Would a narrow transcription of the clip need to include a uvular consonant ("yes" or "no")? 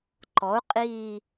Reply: yes